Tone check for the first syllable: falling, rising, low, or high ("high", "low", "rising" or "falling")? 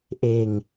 low